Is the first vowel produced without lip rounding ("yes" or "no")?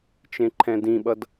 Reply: yes